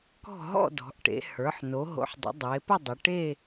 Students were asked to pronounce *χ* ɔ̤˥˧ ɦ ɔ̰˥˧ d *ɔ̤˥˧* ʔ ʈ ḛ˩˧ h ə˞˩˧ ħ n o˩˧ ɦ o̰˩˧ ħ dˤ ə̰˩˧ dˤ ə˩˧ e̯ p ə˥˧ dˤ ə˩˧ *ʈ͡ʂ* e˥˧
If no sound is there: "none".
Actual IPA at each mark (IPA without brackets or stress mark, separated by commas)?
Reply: k, ɔ̤˩˧, ʈ